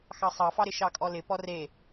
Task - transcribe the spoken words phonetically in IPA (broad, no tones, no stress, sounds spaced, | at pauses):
x ɑ sˤ ɑ f ɑ ɾ ɪ ʃ ɑ kʼ ɔ l ɪ p ɔ r e